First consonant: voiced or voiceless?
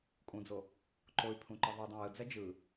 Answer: voiceless